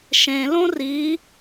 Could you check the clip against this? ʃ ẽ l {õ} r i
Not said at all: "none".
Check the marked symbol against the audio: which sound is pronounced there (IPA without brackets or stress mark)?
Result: õ